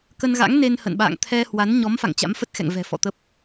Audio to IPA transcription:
k ə˧ n ɣ a̰˧˥ ŋ n e˧ n h ə̰˧˨ n ɓ a̰ː˧˨ ŋ t̪ʰ ɛ˧ h w a˨˦ n ɲ ɔ˨˦ m f a̰˧˨ ŋ t͡ɕ a̰˧˥ m f ə˦˥ t̚ x ɛ̰˧˨ ŋ v ɛ̤˨˩ f ɔ̰˧˨ t̪ ə˦˥ p̚

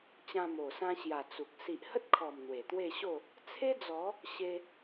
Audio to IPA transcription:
t͡ɕ ã˧ m o˨˩ s ã˧ ɕ j a˨˩ t͡s u˨ k̚ s i˨ ʔ h ə˦ t̚ kʰ ɔ˨˩ m n̪ w e˨˩ t̪ w e˥˧ ɕ o˥˧ | t͡sʰ e˦ d͡z ɔ˨˦ | ɕ e˧

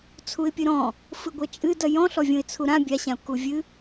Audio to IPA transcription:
t͡sʰ u ɪ̯ pʲ ɨ ɾ ɔ̃ | f ɨ ɡʷ ɛ t͡ʃʼ ɨ d ɐ j ɔ̃ ɬ ɔ vʲ õ ɪ̯ t͡sʰ u ɾ ã bʲ a ɕ ã ʊ̯ k u vʲ ɨ

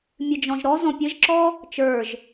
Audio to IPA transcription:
mʲ ɨ d͡ʒ ɔ̃ ʒ ɾ ɔ z ɔ̃ pʲ ɘ ʒ ǁ ɔ | t͡ʃ ə˞ ʒ

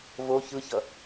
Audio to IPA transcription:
v o ç ɯ ç ʌ

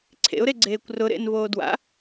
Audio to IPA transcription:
ǀʰ ḛ ʊ̯ ɾ e ɡ͡ǀ eː kʷ r ʊ ɾ ḛ n v oː d w a̰

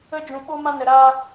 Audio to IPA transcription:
ə˦ d͡ʒ ũ˧ ɓ o˦ m ã˦ n ə˧ ɾ aː˦

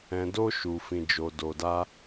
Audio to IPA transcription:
ɛ̃˧ d o˦ ʃ u˧ f ĩ˧ d͡ʒ o˧ d o˧ d a˦

